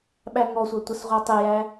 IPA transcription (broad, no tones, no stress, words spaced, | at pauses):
ɓæŋɔsʷə tʷəsʁʷɑtˤɪjæ